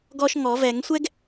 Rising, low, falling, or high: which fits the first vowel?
high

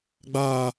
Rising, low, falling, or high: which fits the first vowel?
high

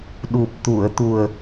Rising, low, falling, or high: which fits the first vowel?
low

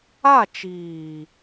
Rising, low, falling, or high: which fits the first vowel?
falling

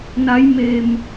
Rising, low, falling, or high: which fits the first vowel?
rising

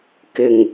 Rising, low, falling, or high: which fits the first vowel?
low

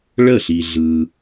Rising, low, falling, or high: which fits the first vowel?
falling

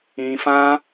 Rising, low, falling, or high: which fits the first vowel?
low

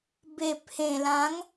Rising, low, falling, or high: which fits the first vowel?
low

